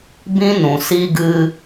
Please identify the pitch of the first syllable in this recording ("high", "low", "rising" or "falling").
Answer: high